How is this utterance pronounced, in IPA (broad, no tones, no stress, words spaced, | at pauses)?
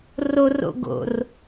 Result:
roro̰ɡo̰r